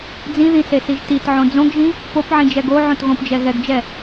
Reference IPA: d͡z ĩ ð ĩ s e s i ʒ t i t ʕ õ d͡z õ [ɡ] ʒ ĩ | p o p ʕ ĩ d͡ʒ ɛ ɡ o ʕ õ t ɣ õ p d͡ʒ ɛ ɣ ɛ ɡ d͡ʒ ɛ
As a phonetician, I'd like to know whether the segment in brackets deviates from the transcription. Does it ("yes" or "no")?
no